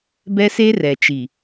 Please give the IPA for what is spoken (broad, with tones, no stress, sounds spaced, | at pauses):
b ɛ˦ s e˦ r ɛ˨ t͡ʃ i˨